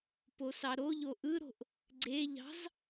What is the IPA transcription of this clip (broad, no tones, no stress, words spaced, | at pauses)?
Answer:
posɑɾoʎo ʔɯɾo̤ʔ | ɡ͡ǀeʎɑ̤z